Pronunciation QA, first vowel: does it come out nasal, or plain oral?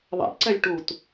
oral